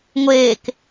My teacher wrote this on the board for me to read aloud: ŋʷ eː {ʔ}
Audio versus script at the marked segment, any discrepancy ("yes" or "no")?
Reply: yes